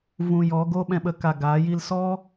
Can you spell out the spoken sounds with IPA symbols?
v ũ˧ j ɔ˨˦ ɡ o˦ ɓ ɛ̃˧ ɓ ə˧ k a˧ ɡ aː˨˦ j i˦ l s ɔ˦

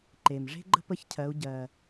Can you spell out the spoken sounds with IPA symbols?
ǃ e˩ m ʐ e̤˥ ɡ͡ǃ ə̤˥ p ə˧˥ ç cʰ ɜ˩˧ u̯ ɟ ɜ˩

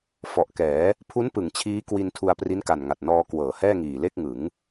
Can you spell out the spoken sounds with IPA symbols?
f ɔ˨˩ ʔ k ɛː˩˦ | pʰ u˦˥ n p ɯ˩˦ ŋ t͡ɕʰ iː˦˥ k w i˧ n tʰ u˧ a̯ p r i˦˥ n k a˨˩ n ŋ a˨˩ t̚ n ɔː˧ k w ɤː˩˦ h ɛː˥˩ ŋ iː˨˩ l e˥˩ k̚ ŋ ɯ˩˦ ŋ

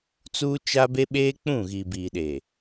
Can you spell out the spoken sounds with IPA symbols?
t͡s uː˦ t͡ʃ a˦ b e˦ ɓ eː˦ k͡p ũ˦˨ ɣ i˨ b iː˨ ɗ eː˨

